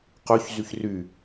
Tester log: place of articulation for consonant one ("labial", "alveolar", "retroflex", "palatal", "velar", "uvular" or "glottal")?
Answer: uvular